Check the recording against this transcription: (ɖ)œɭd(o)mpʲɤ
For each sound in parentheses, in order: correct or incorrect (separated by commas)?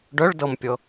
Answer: correct, incorrect